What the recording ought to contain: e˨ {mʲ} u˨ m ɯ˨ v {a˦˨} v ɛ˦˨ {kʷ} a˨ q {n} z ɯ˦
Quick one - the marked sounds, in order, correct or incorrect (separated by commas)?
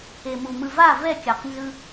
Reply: incorrect, correct, incorrect, correct